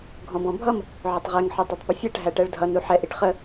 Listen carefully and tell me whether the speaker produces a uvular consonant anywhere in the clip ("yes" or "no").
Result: yes